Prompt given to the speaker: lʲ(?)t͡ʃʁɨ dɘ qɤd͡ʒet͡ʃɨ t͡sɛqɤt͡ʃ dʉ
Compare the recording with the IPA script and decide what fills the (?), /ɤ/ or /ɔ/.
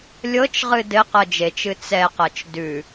ɤ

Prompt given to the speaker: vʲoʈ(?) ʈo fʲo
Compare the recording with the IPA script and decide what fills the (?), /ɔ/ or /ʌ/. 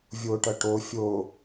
ʌ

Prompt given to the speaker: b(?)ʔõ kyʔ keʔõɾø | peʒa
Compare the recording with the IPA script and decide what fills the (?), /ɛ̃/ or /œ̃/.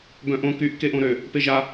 œ̃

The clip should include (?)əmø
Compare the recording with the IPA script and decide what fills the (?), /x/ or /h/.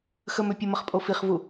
x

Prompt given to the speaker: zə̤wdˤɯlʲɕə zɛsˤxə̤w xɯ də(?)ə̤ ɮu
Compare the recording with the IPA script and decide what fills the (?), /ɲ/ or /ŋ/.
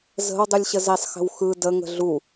ŋ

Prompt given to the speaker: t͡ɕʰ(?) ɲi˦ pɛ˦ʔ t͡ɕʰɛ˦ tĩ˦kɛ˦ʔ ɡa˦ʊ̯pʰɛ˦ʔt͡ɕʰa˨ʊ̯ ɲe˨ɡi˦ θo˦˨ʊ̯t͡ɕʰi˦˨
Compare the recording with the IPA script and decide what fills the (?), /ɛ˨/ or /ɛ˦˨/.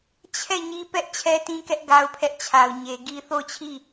ɛ˦˨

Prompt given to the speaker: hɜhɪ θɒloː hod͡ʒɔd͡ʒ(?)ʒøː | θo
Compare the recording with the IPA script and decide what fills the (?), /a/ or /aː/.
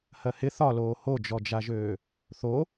a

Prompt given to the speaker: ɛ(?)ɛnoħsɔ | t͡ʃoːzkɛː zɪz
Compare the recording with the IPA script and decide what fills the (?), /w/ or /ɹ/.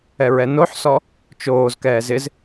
ɹ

